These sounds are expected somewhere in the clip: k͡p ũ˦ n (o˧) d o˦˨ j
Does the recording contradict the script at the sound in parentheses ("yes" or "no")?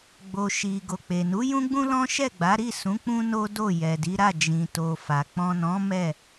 yes